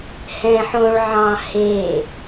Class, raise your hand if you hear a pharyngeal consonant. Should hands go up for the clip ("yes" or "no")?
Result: yes